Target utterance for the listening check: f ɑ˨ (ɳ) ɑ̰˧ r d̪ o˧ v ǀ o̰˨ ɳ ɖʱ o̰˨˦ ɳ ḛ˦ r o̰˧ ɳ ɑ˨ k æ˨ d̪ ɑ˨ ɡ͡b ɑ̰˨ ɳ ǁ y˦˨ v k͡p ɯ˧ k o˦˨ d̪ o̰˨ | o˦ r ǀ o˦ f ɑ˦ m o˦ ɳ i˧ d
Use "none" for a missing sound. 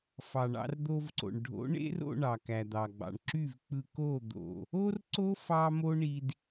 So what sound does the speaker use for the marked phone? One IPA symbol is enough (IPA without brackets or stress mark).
ɳ